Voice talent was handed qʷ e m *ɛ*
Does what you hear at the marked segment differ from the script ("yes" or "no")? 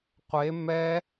no